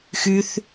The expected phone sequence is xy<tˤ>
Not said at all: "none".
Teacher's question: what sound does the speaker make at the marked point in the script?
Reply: θ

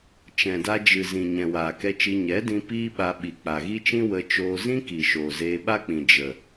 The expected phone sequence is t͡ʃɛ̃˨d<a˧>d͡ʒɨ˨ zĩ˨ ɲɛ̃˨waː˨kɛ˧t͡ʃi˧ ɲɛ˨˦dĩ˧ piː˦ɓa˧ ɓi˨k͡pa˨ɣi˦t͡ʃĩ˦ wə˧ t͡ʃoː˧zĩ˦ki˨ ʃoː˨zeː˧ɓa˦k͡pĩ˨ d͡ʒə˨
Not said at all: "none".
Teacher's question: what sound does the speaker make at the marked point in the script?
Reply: a˧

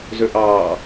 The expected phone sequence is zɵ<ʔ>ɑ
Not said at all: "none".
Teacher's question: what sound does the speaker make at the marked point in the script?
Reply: ʔ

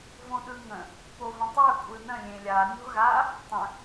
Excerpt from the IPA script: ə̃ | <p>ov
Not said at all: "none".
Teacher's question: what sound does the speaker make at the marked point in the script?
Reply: p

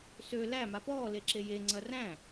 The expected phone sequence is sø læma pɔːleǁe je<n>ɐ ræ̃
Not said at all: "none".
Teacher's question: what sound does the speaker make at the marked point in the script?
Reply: ŋ͡ǀ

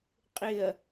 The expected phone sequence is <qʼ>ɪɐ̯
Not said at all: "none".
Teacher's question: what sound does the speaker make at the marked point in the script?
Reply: qʼ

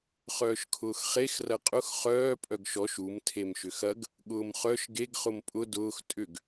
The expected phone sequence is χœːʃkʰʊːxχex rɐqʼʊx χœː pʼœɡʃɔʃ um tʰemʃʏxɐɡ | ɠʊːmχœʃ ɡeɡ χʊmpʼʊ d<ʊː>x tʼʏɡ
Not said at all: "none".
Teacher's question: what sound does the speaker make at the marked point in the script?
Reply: ʊː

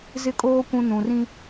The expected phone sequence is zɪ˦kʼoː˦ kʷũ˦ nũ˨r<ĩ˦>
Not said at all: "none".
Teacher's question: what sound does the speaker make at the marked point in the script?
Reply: ĩ˦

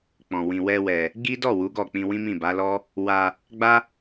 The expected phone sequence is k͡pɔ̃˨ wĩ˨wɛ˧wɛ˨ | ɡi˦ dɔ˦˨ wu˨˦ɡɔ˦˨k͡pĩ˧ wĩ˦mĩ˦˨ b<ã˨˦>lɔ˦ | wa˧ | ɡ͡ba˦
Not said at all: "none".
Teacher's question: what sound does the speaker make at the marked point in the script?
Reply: a˨˦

